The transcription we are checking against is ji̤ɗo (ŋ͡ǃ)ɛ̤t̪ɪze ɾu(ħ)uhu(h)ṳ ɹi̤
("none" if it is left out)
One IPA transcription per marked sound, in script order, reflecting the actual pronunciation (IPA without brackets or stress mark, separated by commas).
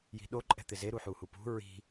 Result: ǃʼ, ħ, p